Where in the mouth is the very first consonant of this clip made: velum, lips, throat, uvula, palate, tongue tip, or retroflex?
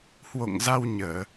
throat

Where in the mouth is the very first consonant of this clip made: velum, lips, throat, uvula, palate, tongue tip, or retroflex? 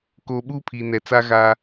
velum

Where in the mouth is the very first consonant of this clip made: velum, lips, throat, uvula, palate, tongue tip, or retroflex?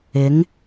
velum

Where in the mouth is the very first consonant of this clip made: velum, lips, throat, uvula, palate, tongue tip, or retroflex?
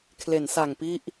velum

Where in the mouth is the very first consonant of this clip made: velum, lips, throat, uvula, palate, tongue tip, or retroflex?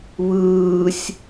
lips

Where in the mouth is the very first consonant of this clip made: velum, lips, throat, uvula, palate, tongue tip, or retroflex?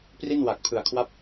lips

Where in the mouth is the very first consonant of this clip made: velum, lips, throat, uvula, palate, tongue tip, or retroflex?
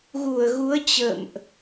velum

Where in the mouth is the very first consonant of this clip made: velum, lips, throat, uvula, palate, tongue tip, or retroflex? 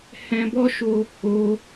throat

